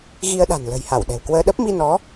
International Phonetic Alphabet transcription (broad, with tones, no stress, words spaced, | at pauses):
ɣi˧ə̯ɗa̤˨˩n lə̤˨˩jha˧˩w ɗɛ̤˨˩wkwəː˧ ɗə˦˥p̚ mi˧nɔ˨˦